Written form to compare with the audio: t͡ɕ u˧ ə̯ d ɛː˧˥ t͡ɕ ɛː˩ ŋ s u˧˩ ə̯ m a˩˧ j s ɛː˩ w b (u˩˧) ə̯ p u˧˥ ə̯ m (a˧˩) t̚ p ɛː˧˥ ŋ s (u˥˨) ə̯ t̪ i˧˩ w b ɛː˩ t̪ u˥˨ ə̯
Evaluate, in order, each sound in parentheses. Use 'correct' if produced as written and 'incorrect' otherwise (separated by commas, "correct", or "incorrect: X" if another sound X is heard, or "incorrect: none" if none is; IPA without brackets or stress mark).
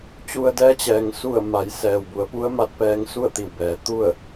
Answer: correct, incorrect: a˧˥, correct